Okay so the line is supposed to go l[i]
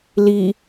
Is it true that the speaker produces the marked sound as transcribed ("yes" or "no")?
yes